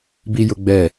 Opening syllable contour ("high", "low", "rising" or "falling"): high